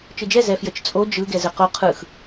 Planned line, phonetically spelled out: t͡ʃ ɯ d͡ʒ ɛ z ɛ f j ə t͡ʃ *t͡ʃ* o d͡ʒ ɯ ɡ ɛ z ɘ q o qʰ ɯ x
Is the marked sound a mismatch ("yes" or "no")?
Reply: yes